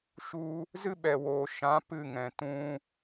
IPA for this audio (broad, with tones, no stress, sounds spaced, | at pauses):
ʃ u˧ | z ɨ˦ ɓ ɛ˨ w oː˨ ʃ ã˨˦ p ɨ˦˨ ŋ ɛ̃˨ t ũ˧